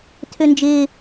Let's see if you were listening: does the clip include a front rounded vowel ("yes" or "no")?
yes